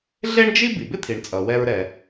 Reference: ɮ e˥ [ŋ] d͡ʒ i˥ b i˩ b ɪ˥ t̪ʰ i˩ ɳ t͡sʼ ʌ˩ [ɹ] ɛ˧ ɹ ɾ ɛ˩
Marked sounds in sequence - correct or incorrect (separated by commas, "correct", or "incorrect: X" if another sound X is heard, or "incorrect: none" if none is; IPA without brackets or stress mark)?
incorrect: ɳ, incorrect: w